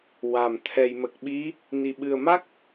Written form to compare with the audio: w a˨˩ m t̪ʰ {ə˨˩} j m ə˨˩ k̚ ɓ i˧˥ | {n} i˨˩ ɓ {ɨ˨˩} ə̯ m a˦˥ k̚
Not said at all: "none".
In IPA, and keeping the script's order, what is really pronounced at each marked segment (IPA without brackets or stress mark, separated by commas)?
ɛ˨˩, n, ɨ˨˩